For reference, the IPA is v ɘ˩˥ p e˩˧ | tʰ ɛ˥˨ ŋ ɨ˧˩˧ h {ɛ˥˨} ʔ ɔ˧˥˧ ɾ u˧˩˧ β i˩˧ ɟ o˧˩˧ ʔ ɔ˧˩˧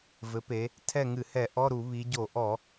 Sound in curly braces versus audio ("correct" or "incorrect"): incorrect